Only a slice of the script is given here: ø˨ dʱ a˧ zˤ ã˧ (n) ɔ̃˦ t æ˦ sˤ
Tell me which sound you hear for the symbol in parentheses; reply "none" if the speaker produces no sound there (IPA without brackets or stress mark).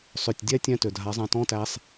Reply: t